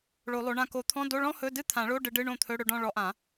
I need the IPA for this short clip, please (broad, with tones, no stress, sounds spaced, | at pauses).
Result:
ɭ o˨˩˦ lˠ o˨˦ ɳ ã˥˩ k o˨˩˦ t̪ʰ ɔ̃˧˥˧ d o˧˥˧ ɭ ɔ̃˥ h ɵ˧˥˧ d ɨ˥˧ t̪ʰ ã˨˩˦ ɭ o˧˥˧ ɖ ɨ˨˦ ɖ ɨ˧˥˧ ɳ õ˥˩ t̪ʰ ɵ˧˥˧ ɽ ɵ˥˧ ɖ ɔ̃˥˧ ɭ ɔ˨˦ ʔ ã˨˩˦